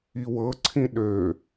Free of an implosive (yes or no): no